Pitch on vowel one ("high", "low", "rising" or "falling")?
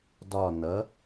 falling